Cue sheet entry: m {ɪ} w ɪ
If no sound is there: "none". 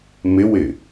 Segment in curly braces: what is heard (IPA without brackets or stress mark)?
ɪ